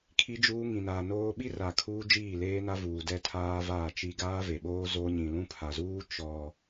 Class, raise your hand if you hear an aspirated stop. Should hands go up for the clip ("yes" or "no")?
yes